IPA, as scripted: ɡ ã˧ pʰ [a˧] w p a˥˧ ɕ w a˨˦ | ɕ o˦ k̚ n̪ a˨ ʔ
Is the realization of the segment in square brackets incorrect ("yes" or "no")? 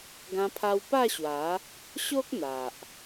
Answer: no